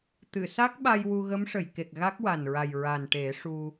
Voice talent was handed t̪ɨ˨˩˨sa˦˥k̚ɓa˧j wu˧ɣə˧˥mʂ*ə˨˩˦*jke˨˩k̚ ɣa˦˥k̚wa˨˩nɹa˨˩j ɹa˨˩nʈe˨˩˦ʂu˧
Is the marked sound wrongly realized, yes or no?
yes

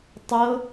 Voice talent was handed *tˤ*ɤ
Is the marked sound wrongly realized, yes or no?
no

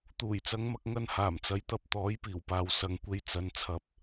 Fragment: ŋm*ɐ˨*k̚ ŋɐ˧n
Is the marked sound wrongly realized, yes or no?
yes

